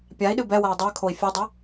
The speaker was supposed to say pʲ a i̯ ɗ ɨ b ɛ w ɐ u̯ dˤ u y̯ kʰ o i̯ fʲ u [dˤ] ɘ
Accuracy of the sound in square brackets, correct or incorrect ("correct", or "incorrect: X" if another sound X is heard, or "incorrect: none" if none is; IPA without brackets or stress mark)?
correct